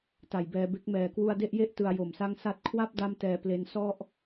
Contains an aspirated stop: yes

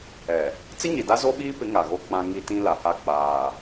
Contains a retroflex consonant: no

